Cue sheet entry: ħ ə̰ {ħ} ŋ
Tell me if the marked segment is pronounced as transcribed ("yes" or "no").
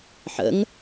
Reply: no